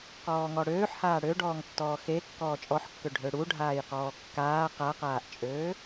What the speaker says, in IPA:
q ɔː ŋ ɔ ɽ øː ħ h aː ɽ ø ɖ ɔː ŋ tː ɔː x e kː ɔː t͡ʃʼ ɔ ħ kː ø ɖʱ ø ɽ u ɖʱ aː j q ɔː kː aː q a q aː ʔ t͡ʃʼ øː

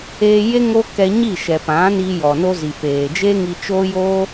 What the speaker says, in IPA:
eː˧ j e˦ ŋ o˦ k ɛ˧ ɲ i˦˨ ʃ ɛ˨ p ã˨˦ n iː˧ j ɔ˨ n o˦ z i˨ p eː˨ d͡ʒ e˦ ŋ i˧ t͡ʃ oː˦ j oː˦

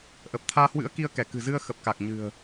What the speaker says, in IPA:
ʔ ə˨˩ p̚ t̪ʰ aː˧ h w ɨ̰˧˥ ə̯ k i˧ ə̯ k ɛ˧˩ k ɨ̤˨˩ z ɨ˧ ə̯ x ə˨˩ p̚ k a˨˩ k̚ ɲ ɨ̤˨˩ ə̯

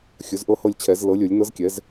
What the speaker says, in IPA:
xʲ ɵ˩˥ z ʔ ɤ˦˨ h ɤ˦˨ lʲ t͡ɕʰ ɛ˨˩˦ z l ɤ˩˥ lʲ ɵ˨˩˦ lʲ n ɤ˧˥ z kʲ ɛ˩˥ z

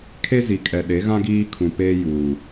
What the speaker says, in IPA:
kʰ e˦ z i˨ kʼ ɛ˨ ɗ e˨˦ ɣ ã˦ ɡ iː˦ kʰ ũ˨ p eː˦ j uː˨

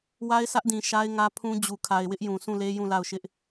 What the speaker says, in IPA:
w a˦ ɪ̯ sʰ ä˦ ʔ d ĩ˨ ʃ a˦ ɪ̯ ŋ ä˦ pʰ ũ˦ d͡ʑ u˨ kʰ a˨ ɪ̯ w ɪ˦ ʔ j ũ˨ s ũ˦˨ l e˦ j ũ˦˨ l a˦˨ ʊ̯ ʃ ɪ˦ ʔ

